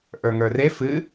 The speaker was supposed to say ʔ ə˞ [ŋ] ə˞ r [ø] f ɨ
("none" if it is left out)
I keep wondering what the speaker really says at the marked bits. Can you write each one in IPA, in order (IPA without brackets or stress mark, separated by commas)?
ŋ, e